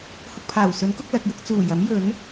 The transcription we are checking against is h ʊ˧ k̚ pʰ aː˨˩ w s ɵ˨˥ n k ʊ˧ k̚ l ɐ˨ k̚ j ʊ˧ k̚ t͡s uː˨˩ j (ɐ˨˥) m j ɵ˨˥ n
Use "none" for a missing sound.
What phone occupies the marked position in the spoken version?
ɐ˨˥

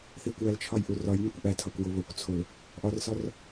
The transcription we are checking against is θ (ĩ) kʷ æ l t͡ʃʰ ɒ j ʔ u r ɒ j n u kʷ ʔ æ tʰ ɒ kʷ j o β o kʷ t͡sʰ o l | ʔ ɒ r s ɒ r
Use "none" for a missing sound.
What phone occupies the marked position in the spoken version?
i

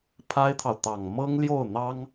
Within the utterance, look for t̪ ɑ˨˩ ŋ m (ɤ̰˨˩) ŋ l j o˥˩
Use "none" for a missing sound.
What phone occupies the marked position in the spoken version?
ɤ˥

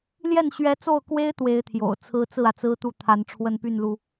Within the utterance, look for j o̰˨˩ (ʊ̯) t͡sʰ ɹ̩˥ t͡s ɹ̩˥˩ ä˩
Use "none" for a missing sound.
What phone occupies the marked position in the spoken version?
ʊ̯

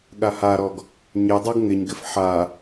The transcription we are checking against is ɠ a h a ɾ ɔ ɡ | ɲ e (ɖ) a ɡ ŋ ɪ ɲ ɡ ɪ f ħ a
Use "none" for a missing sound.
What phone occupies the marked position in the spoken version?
dˤ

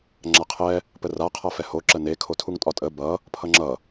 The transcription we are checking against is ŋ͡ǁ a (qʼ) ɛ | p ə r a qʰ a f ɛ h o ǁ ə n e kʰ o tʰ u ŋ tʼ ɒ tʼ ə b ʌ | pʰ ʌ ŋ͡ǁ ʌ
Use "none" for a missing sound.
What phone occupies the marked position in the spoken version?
qʰ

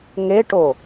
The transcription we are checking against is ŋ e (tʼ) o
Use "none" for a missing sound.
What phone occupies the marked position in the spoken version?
ʈ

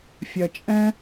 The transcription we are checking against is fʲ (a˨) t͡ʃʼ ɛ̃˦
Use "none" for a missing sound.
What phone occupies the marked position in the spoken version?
ɐ˨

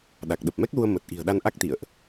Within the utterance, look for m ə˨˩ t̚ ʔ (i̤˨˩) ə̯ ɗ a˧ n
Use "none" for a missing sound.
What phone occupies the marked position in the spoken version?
i̤˨˩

